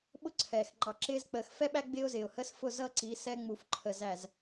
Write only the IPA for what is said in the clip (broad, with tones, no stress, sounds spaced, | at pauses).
ɓ ʊ˦ ǀʰ ɛː˨ x ŋ͡ǃ ɑ˨ ǁ ɪː˦ z k͡p əː˨ x f ɛ˦ ɓ æ˦ ɡ͡b ɪː˦ ʊ̯ z ɪː˨ ʊ̯ h əː˦ s f ʊ˦˨ z ʌ˦ ǀ i˨˦ s ɛ˦ ŋ͡m u˨ f ǃʰ ə˨ z æ˨ z